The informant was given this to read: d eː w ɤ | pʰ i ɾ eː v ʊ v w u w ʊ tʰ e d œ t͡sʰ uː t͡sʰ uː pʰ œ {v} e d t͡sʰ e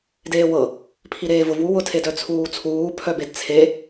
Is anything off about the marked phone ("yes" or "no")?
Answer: yes